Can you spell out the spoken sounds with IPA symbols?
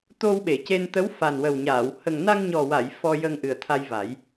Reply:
t̪o˧wɓe˨˩˨ce˧n t̪ə˧˥w fa˨˩nwə˨˩wɲaː˨˩˨w hə˨˩ŋna˧ŋɲɔ˨˩wa˨˩˨j fɔ˧ jə˧ŋʔɨ˨˩ə̯t̪ʰa˧jva˨˩˦j

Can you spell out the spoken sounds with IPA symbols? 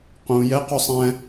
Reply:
qũ jɛqusˤɛ̃

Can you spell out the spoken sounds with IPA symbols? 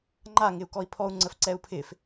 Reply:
ŋ͡ǃaŋɪu̯ kɔi̯pʰɔu̯ŋ͡ǀəf ǀɛu̯pʰɪf

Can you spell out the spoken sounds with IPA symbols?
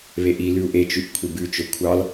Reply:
βeʔilʉu̯ ʔet͡ʃʉʔ kʷʰibʉt͡ʃɵ kʷʰɑl

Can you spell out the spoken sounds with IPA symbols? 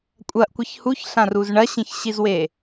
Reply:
kʷʼɐʔkʷɘç huçɬãruz ɳɐɕĩçɕizwe

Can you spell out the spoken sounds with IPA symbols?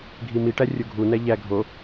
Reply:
ɡʱimiʈæ rʲoɡʱunæ ʎæ ɡʱo

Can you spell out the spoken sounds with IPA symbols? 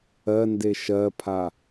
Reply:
ɜnde ʃɜpʰa

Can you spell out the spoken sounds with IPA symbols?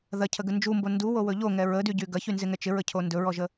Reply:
ðɐcʰəɡə nd͡ʒumbo nduwowɵ ʎoŋɛ ɹədyɟy ɡɐçynzɪŋɛ t͡ʃɪɹəcʰo ndɵɹɔʒə

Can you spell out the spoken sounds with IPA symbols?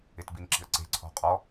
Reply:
ɪtbinǁi̤ə̯ǀe̤ ǀʰɔ̤qʼɔ

